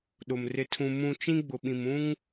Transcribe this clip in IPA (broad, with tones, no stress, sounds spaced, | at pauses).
ɗ ʊ˨ m r ɪ˨ tʰ ũ˨ m ũ˨ t͡ʃ ĩ˦ ɡ͡b ʊ˨ ɓ ĩ˨ m ũ˦ ŋ